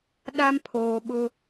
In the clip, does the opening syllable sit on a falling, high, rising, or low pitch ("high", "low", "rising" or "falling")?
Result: high